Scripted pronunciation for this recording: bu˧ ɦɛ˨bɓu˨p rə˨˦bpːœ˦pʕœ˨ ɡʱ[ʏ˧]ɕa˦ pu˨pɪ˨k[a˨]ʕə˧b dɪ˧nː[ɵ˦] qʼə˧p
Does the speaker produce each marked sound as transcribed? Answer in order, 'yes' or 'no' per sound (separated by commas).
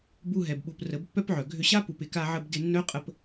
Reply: yes, no, no